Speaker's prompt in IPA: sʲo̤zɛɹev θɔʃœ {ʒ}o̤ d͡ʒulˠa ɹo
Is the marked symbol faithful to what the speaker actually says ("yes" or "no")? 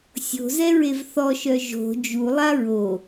yes